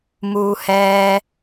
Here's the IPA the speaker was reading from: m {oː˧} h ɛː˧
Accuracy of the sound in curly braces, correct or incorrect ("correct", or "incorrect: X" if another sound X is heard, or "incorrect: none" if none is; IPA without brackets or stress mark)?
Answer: incorrect: uː˧